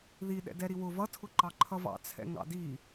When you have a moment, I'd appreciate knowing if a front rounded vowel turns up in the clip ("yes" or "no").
no